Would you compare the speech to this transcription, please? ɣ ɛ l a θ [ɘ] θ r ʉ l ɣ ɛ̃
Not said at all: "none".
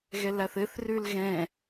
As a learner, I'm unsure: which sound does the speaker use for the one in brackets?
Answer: ɘ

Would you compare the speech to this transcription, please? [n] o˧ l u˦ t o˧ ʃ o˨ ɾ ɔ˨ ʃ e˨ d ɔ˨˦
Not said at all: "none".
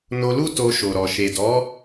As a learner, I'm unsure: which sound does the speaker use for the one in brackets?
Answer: n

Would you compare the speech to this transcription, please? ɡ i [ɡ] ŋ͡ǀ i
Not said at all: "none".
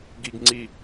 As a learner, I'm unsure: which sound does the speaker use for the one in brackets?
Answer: ɡ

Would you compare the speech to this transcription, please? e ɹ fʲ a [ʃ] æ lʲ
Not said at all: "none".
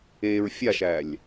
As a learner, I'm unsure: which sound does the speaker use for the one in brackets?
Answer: ʃ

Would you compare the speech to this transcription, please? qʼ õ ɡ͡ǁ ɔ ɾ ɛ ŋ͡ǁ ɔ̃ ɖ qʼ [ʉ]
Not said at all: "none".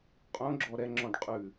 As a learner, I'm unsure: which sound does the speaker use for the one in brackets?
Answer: ʉ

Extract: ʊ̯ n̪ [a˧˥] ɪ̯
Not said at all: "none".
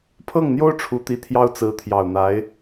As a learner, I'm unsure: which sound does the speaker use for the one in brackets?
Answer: a˧˥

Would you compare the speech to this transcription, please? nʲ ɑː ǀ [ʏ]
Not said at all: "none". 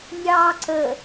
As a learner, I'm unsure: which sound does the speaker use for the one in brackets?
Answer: ə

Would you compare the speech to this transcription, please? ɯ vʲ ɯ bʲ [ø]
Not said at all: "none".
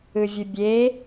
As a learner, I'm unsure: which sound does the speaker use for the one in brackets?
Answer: e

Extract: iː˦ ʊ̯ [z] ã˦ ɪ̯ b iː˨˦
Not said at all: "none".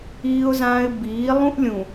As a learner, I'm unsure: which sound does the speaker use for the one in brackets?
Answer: z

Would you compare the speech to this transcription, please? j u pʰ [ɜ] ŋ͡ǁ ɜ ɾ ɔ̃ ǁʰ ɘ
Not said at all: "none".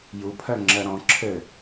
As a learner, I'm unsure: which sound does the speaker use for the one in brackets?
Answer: ɜ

